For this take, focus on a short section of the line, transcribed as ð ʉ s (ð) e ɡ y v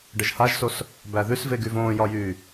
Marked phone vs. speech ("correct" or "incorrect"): incorrect